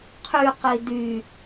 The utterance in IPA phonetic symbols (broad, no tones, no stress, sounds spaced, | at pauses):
qʰ y q i d y